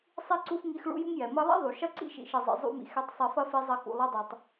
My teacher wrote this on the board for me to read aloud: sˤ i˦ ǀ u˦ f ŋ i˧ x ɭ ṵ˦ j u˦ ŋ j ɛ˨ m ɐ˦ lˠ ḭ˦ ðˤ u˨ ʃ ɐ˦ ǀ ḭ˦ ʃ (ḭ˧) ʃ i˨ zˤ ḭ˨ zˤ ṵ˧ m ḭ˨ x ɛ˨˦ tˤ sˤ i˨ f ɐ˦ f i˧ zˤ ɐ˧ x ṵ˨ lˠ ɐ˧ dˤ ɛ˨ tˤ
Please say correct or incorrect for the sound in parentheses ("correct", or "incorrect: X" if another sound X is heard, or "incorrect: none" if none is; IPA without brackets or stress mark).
incorrect: ḭ˨